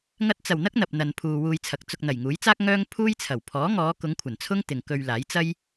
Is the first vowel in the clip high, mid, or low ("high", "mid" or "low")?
low